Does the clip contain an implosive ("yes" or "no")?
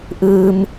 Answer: no